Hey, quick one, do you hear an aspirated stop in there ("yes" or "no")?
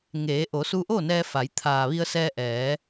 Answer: yes